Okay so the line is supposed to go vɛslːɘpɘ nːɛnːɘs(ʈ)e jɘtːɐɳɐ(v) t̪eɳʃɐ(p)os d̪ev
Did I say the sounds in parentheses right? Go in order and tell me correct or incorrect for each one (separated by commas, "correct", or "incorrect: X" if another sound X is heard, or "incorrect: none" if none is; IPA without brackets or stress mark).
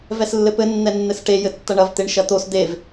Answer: correct, correct, incorrect: t̪